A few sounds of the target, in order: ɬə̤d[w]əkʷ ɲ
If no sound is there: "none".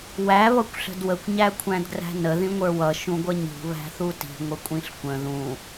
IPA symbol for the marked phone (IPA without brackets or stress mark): w